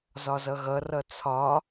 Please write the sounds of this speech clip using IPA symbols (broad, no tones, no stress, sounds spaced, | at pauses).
z ɒ z ʌ ɣ ʌ r ʌ t͡sʰ ɒ